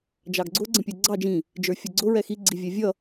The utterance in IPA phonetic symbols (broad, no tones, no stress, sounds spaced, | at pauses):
d͡ʒ ɑ ɡ ɡ͡ǀ ʊ ɡ͡ǀ ə̃ pʲ ə˞ ɡ͡ǀ ɑ d͡ʒ ĩ | d͡ʒ ə˞ fʲ ʌ ɡ͡ǀ ʊ ɹ ɛ x i ɡ͡ǀ i vʲ ɛ vʲ ʌ